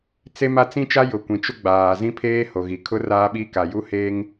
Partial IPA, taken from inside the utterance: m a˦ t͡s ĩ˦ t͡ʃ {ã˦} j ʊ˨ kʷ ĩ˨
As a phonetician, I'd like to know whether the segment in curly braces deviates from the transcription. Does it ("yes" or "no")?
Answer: yes